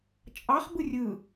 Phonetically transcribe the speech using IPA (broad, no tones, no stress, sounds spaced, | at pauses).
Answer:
t͡ʃʼ ɑ χ b ɯ rʲ ɯ